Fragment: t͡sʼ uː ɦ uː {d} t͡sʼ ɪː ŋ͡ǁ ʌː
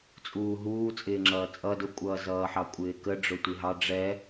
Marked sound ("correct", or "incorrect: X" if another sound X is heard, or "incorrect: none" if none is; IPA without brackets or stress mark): incorrect: none